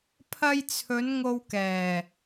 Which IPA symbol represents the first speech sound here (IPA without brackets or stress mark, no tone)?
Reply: pʰ